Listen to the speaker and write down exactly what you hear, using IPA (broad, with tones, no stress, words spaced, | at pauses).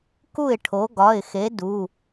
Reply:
ku˥˩ɪ̯ʈʰo˨˥ ɡɒ˩˧˩ɪ̯xe˨˥ du˩˧˩